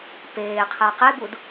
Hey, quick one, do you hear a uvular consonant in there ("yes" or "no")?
yes